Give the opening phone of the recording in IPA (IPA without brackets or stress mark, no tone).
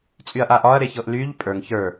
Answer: t͡sʼ